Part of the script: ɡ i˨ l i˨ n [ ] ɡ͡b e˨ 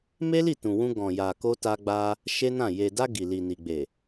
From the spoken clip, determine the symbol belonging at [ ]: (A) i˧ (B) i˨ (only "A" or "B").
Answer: B